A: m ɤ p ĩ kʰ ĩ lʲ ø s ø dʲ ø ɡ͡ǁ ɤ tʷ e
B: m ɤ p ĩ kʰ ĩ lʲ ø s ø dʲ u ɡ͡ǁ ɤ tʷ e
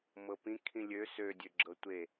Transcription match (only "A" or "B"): A